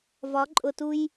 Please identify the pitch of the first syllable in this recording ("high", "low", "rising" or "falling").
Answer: rising